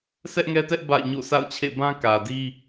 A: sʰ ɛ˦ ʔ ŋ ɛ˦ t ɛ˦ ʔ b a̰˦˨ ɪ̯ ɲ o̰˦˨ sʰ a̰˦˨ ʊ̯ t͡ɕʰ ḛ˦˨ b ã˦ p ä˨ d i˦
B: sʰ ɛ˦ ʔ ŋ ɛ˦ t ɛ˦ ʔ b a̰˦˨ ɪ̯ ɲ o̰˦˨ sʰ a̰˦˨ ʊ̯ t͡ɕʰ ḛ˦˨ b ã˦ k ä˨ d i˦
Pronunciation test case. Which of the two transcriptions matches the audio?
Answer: B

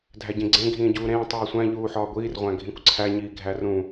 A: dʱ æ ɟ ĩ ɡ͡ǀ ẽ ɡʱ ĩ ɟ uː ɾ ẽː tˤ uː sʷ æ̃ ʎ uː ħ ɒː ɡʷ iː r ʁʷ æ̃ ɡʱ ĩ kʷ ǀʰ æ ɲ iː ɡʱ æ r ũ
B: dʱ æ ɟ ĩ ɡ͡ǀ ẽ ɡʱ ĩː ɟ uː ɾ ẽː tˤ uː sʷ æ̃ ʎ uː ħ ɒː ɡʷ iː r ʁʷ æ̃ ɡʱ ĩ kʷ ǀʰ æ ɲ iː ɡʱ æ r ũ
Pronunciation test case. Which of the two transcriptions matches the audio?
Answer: B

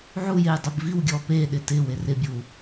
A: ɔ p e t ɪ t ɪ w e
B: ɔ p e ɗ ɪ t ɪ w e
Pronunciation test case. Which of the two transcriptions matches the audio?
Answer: B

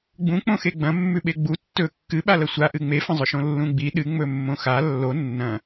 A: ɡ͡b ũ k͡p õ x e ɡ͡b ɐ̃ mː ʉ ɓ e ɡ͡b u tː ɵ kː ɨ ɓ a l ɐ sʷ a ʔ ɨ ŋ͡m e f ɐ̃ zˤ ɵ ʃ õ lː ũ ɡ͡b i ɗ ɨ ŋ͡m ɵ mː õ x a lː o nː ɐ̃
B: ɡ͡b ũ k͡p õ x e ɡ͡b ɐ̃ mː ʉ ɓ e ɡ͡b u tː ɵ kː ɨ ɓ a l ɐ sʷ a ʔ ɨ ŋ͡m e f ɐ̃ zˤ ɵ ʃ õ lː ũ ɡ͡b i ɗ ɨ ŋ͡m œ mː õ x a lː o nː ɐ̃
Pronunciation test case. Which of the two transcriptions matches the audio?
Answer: A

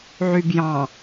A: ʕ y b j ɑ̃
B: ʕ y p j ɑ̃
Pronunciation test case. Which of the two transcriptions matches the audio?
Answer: A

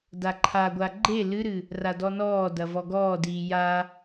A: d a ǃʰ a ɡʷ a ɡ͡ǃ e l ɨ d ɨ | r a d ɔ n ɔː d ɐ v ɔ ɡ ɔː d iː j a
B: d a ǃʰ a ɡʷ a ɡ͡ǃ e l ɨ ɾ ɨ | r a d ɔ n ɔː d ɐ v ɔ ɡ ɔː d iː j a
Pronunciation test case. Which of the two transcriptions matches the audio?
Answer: B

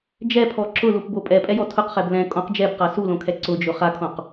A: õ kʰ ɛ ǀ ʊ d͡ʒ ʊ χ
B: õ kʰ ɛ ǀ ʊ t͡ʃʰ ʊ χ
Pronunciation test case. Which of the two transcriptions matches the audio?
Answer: A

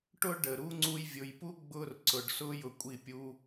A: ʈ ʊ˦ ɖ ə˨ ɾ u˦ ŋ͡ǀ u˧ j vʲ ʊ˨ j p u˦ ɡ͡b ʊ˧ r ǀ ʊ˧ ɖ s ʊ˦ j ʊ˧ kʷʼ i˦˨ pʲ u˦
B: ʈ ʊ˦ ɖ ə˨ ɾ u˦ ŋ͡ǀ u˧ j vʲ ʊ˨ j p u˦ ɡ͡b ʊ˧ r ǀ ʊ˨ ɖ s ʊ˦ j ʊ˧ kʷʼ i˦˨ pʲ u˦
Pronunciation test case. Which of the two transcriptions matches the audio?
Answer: B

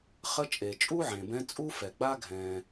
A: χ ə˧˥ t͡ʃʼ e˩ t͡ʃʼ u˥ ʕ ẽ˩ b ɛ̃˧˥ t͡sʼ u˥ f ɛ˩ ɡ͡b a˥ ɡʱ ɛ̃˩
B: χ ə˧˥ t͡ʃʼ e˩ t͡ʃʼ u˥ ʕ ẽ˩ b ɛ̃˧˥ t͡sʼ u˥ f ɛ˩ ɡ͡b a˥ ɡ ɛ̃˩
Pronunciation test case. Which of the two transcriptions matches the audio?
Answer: A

